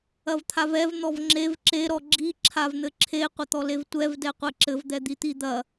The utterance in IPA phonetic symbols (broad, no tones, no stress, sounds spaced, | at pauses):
ɐ v t̪ʰ a v ɛ v n̪ ɔ v ŋ͡ǁ e v ǁ e ɾ ɔ ɡ͡ǁ i ǁʰ a v n̪ ɘ ǁʰ e qʷ ɐ t̪ ɔ l e v tʷ ɛ v d ɛ qʷ ɛ ǁ ɘ v d̪ ɛ d̪ i t̪ i d̪ ɐ